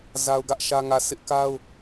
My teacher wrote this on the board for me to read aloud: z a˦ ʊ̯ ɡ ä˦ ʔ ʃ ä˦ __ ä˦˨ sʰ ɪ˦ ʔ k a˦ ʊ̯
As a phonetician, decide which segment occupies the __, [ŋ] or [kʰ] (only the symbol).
ŋ